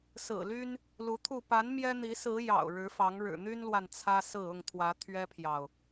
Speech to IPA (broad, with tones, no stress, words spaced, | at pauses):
sɹ̩˨˩ly˦n | lu˨˦t̪ʰu˥˨ pa˨˦n mjɛ˦ n̪i˨˦sɹ̩˨˦ jɑ̰˨˩ʊ̯ ɻɻ̩˨˦fɑ˨˦ŋ ɻɻ̩˨˩n̪y˦nlwa˨n t͡sʰä˦sɹ̩˥˨ ʊ˥˨ŋt̪ʰwä˨˦ t̪ʰɥɛ˦pʰjɑ˨ʊ̯